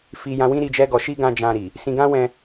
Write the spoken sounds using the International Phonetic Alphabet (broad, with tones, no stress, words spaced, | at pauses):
fi˧jã˧wĩ˦ ɾi˧d͡ʒɛ˦ɡɔ˧ʃi˦ ɡã˦d͡ʒã˧ɾi˨ | sĩ˧ɡã˦wɛ̃˧